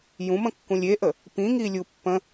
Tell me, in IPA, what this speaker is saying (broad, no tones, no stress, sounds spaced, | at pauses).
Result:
j ũ m ə̃ kː ũ lʲ e ʔ ə | p ĩ ŋ i lʲ u pː ə̃